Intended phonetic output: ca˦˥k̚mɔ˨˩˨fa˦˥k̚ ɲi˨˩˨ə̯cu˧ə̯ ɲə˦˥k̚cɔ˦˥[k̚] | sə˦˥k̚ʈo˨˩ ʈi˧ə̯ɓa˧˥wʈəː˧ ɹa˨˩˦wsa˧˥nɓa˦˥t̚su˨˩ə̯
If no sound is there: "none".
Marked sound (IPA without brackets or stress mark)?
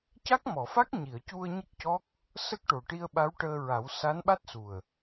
k̚